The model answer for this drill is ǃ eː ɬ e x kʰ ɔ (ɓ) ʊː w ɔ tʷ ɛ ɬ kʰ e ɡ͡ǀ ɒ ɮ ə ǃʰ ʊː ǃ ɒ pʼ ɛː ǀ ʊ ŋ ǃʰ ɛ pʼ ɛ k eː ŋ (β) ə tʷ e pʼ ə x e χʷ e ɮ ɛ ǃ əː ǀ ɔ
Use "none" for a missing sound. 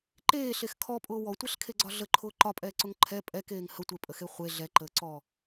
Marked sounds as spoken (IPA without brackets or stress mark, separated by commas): pʼ, h